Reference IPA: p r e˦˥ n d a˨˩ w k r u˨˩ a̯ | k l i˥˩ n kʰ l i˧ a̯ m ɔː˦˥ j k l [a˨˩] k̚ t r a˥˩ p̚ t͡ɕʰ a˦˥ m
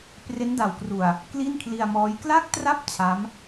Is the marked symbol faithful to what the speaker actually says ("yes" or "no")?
no